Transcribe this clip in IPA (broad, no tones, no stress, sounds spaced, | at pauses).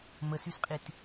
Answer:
m ə s y s qʼ i t